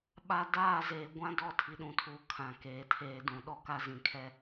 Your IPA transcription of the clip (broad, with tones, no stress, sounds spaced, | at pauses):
ɓ a˨ d aː˦˨ z eː˨ ɡʷ ã˦ d ɔ˦˨ tʰ i˨ ɗ ũ˨ tʰ uː˨ kʰ ã˨ k eː˨ tʰ eː˨ d ũ˨ ɗ ɔ˦ k a˦ z ĩ˨ kʰ ɛ˦